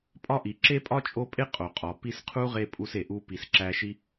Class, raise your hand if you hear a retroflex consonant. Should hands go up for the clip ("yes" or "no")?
no